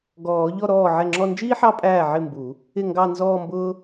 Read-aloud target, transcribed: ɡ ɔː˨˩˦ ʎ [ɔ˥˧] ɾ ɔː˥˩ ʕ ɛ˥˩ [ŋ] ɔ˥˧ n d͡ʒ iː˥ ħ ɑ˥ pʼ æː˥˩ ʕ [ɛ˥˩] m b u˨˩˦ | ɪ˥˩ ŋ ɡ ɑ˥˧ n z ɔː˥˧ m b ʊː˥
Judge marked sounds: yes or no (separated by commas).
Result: yes, no, no